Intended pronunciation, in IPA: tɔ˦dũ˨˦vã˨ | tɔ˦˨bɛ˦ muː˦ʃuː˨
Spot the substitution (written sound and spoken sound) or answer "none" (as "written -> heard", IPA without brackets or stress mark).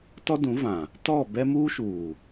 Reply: none